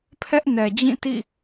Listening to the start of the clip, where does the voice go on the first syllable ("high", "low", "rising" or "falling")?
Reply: high